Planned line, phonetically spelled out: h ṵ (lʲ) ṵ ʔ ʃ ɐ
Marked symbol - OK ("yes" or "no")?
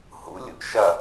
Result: yes